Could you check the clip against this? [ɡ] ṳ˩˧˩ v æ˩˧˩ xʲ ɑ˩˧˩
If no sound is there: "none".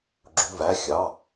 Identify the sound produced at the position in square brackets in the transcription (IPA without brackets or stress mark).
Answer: ɡ͡ǁ